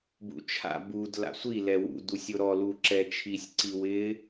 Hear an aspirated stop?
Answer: yes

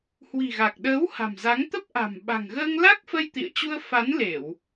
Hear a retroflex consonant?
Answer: no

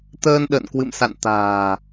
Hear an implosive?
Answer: yes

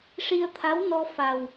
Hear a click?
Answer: no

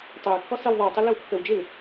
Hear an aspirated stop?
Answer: no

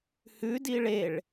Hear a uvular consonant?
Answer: no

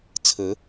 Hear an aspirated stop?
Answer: yes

